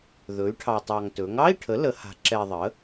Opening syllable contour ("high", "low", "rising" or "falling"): rising